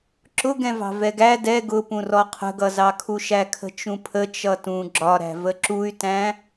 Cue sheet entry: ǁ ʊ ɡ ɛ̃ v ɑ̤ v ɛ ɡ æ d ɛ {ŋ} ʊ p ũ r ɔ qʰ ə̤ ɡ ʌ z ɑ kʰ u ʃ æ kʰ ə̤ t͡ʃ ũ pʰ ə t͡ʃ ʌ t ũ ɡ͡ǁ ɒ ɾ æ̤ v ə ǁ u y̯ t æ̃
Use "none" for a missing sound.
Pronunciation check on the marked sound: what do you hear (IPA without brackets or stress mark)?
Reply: ɡ